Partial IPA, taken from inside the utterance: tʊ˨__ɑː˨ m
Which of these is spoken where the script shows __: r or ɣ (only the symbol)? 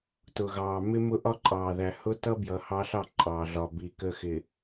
ɣ